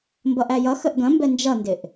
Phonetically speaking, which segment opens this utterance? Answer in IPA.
m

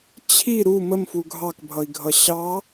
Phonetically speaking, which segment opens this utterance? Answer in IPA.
t͡ɕʰ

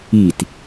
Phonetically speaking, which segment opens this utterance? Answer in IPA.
i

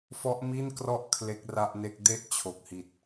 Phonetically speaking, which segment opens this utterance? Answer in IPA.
f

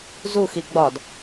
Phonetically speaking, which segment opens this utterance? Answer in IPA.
z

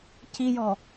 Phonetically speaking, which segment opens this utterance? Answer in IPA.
c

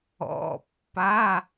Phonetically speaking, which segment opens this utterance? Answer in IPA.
ɔ̰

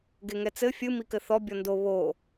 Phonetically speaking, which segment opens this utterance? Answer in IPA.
ɡ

